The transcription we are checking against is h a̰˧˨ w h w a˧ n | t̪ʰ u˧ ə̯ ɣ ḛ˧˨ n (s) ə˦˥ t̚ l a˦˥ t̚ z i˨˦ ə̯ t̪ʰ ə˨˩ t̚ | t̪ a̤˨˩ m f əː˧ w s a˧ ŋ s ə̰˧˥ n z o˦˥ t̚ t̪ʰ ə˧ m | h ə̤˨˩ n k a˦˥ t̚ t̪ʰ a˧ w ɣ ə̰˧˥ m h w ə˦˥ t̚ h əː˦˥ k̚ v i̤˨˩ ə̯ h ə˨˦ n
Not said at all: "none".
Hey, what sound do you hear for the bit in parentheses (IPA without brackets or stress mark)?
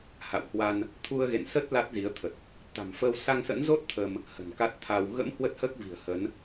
s